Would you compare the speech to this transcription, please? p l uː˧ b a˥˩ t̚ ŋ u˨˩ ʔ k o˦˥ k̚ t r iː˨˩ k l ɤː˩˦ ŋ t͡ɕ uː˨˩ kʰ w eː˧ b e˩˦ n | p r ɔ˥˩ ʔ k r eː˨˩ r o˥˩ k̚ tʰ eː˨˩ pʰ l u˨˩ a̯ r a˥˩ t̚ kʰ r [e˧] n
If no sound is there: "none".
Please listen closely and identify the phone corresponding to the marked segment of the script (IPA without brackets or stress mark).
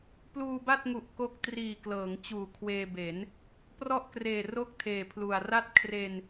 e˧